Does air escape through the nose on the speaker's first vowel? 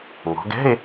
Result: no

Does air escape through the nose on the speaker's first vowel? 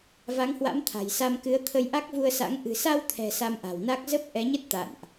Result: no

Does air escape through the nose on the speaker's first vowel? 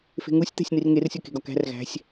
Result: no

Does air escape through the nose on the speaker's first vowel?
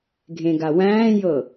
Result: yes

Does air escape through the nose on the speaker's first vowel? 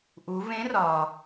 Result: no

